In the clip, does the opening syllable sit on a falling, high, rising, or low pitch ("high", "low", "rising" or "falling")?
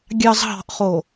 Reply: low